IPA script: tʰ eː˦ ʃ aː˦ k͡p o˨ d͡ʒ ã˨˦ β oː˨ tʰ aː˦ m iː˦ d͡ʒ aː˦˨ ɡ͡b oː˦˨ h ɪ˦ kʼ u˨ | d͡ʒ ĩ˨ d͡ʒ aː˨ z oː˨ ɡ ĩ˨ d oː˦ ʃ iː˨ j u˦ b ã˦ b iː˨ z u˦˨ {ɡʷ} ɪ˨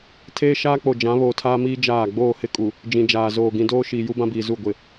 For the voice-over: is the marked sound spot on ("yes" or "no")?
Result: yes